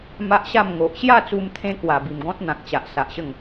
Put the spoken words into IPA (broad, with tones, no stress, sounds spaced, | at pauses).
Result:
m a˦ ʔ ɕ a˥˧ m ŋ o˨ ʔ ɕ j a˥˧ t͡s u˧ m t̪ʰ ẽ˦ k w a˨˩ b i˨˩ m ɡ ɔ̃˦ t̚ n̪ ã˨ k̚ t͡ɕ a˨ ʔ s a˨ ʔ ɕ ə˥˧ ŋ